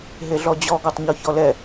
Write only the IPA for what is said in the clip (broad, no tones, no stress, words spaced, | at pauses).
ɦeɮɔd͡ʑɔ ɡɔtˤɲɔçɔlɛ